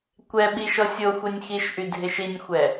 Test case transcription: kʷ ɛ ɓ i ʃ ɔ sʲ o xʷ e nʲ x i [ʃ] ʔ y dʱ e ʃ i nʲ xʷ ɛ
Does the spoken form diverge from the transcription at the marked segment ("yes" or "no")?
no